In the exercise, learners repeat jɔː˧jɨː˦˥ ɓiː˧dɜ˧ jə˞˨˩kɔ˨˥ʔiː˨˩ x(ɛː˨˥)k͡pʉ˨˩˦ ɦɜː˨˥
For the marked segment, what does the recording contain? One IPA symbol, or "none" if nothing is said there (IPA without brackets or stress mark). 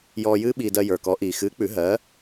ɨː˨˥